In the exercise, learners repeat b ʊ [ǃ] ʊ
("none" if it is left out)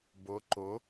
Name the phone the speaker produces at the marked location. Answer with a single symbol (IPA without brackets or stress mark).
ǃ